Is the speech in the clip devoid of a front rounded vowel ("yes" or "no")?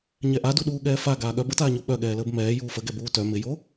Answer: no